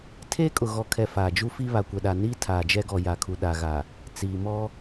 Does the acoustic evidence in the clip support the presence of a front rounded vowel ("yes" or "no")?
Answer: no